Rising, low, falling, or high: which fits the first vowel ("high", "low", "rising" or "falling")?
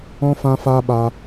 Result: high